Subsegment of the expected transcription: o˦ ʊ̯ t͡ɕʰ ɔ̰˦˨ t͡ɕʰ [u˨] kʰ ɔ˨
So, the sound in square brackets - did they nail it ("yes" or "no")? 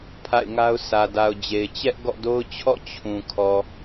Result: no